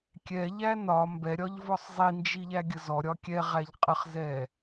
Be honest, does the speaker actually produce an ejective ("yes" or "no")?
yes